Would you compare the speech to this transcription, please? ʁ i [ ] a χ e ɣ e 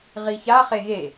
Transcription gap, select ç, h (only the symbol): ç